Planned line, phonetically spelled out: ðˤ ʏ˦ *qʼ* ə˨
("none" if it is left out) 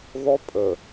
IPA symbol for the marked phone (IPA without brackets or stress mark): pʼ